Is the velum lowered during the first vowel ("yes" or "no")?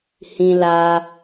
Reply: yes